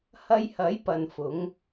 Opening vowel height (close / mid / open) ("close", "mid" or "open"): open